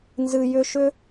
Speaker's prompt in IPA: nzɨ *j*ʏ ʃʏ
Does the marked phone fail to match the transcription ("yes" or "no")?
no